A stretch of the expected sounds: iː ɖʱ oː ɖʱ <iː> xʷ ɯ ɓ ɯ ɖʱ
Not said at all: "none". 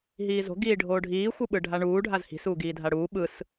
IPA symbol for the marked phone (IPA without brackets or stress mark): iː